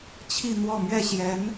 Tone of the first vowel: falling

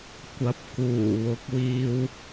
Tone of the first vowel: rising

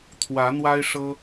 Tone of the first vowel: rising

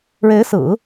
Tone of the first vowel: rising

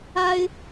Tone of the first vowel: high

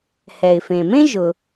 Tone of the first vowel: low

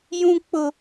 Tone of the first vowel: high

